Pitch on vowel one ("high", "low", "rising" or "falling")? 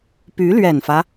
rising